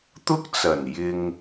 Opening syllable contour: high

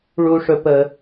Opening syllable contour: high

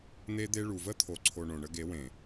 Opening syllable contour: high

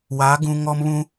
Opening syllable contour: rising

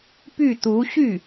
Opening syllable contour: falling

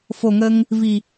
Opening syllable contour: low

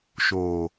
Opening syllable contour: low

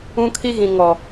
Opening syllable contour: high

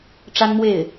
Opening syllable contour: high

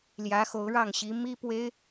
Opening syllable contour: rising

